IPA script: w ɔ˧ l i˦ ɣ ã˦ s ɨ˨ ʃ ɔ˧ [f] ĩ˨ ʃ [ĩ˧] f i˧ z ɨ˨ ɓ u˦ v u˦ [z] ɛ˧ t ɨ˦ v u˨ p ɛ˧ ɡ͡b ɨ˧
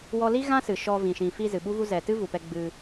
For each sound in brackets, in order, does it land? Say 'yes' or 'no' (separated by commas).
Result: no, no, yes